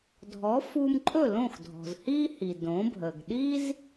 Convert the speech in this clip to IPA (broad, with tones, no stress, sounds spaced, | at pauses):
dʱ ɔ˩˥ f u˧ m ǃʼ ɵ˥˩ l õ˥˩ x dʱ ɔ̤˩ z h i˥ h i˩ d õ˩˥ bʱ ə˩ ɡ ɗ i˥ z